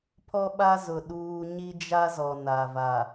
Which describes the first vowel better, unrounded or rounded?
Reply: rounded